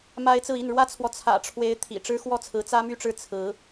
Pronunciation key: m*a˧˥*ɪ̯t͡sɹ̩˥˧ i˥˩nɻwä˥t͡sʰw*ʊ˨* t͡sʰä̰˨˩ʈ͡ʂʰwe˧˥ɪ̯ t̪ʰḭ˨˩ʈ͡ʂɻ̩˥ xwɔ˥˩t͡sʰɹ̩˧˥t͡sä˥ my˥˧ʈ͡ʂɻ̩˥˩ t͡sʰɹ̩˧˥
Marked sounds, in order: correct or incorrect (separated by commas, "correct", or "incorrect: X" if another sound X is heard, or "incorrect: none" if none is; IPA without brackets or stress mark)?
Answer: incorrect: a˥, incorrect: ɔ˨